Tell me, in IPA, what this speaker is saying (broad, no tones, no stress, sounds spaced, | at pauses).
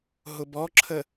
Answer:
ɦ ʊ b ɔ ǁʰ ə